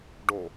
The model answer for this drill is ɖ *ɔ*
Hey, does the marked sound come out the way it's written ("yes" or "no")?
no